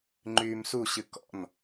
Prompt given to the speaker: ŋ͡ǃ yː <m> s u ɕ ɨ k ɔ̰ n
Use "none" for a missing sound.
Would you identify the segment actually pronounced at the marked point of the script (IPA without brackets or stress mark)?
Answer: m